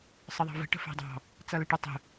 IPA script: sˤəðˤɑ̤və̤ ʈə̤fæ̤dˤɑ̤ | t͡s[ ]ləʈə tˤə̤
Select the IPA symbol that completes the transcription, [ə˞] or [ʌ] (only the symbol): ʌ